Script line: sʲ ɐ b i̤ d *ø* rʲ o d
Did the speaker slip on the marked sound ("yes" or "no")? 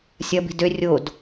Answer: no